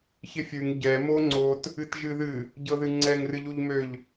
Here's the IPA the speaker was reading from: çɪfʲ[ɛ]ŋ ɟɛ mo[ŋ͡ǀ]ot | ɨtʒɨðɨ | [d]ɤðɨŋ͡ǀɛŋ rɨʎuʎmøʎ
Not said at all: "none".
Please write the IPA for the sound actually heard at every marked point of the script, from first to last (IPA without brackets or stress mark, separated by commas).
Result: ɨ, ŋ͡ǀ, ɟ